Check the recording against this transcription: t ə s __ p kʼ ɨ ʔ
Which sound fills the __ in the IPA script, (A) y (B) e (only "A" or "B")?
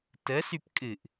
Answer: A